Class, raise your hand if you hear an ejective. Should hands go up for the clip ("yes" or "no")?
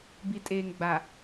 yes